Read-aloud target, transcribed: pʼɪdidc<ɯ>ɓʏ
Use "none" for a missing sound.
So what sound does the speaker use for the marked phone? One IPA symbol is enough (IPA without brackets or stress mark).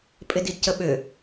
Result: ə